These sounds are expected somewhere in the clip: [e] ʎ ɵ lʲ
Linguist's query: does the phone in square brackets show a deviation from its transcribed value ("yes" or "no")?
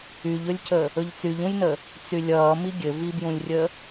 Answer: yes